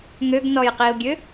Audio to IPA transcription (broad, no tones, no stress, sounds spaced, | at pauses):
ŋ ø ɡ n ɔ j q i ʊ̯ ɡʲ ø